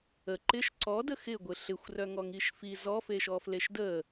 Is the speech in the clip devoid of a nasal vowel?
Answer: yes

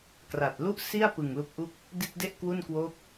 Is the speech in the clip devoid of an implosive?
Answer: yes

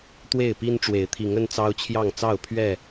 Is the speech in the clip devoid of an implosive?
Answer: yes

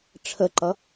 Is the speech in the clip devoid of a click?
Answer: no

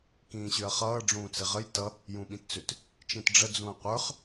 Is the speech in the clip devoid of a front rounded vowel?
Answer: no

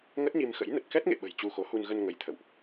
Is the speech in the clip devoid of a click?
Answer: yes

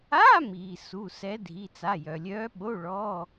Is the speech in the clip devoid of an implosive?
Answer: no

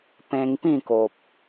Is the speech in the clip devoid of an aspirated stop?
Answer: yes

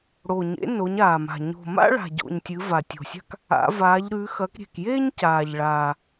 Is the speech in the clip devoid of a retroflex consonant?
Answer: no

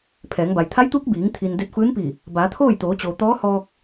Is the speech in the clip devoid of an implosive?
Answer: yes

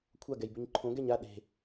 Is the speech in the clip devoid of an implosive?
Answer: no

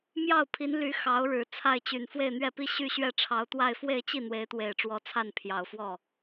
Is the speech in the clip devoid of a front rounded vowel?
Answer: no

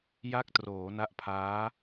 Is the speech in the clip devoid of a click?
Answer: yes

